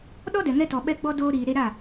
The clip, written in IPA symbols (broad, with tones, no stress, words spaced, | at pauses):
ɗɔ˦dɛ˨ŋɛ˧tɔ˨ ɓɛ˧ɡ͡bɔ˧ doː˧ɾiː˨ ɾe˧ɾa˦˨